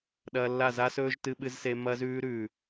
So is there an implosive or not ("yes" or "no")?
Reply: yes